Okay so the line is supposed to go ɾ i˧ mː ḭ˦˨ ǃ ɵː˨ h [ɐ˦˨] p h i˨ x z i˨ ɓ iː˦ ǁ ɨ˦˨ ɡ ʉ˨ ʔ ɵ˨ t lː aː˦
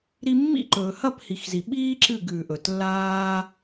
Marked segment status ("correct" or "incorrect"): correct